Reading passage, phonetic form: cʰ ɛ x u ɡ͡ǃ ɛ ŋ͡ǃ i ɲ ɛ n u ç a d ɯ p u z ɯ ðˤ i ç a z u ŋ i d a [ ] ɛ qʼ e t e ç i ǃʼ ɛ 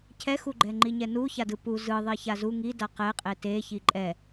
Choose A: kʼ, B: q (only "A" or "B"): B